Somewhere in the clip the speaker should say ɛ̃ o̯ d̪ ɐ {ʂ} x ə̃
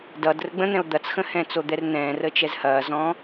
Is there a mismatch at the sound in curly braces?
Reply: yes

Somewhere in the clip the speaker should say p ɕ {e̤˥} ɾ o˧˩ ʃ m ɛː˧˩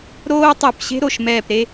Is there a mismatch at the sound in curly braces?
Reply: no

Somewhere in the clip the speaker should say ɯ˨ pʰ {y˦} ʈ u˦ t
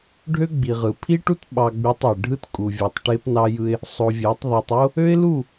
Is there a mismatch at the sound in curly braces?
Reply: yes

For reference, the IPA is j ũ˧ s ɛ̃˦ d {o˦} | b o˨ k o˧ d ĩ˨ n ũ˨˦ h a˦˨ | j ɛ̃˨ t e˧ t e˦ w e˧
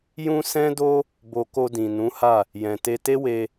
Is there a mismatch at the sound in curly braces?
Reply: no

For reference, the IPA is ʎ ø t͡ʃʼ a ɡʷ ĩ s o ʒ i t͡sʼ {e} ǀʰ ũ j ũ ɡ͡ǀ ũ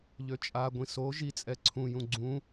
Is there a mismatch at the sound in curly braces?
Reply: yes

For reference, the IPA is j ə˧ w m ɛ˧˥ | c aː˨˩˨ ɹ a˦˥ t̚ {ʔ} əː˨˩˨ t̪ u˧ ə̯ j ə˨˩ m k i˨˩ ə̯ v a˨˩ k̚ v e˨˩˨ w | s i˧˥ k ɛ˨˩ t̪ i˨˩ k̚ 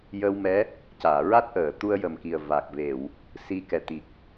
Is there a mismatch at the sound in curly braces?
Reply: no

